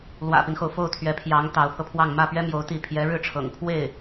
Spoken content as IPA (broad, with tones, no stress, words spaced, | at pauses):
lwä̰˨˩pi˦nxo˩ʊ̯ fo˥˩ʊ̯t̪ʰɥɛ˧˥pʰjɑ˧˥ŋ t̪ɑ˧˥ʊ̯pʰɤ˧pʰwɑ˥˧ŋ mä˥˩pɥɛ˥ mjo˧˥ʊ̯ t̪i˥˩ pʰjɛ˧˥ɻɻ̩˥˩ʈ͡ʂʰɤ̰˨˩ŋ pʰwe˥˩ɪ̯